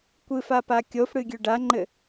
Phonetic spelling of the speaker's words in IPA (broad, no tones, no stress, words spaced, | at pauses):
kʷɨf apakʲofɽɨ ɡʲøɖaŋ͡ǃɘ